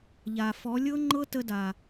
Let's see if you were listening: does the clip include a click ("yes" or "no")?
yes